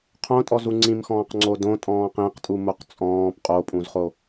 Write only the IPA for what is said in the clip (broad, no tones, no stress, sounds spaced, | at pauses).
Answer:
qʰ õ tʼ ɔ z u ŋ͡ǀ ĩ m x ɔ̃ː q ŋ͡ǀ o d õ tʼ ɔ̃ː q ĩ q tʼ u m o q t͡sʼ ɔ̃ː p qʼ o pʼ ũ z χ o